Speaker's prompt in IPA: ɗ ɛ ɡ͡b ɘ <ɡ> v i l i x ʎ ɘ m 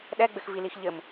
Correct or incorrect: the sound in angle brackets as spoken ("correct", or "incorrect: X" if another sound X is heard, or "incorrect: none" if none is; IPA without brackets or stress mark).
incorrect: x